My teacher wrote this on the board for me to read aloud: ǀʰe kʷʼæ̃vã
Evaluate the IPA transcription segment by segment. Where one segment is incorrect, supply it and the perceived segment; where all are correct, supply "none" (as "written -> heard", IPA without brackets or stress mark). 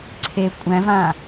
none